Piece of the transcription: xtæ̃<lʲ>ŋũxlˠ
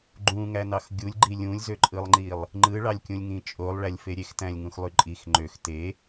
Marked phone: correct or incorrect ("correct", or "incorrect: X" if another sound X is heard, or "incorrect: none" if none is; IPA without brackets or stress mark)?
correct